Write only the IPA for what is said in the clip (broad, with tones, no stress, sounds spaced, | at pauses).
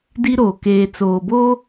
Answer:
d i˦ ɾ oː˨ k eː˨ t͡s oː˨ b o˦